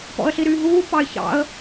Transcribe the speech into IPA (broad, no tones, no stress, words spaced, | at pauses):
pɔ̰ə̯ɬiɾyːɦuː pɑɪ̯çɑ̰ə̯